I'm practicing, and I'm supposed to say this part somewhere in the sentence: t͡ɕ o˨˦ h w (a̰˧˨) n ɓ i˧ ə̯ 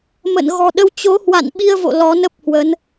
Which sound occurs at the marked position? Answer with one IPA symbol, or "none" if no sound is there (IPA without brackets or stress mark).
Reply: a̰˧˨